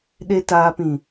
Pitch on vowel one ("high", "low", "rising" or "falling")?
low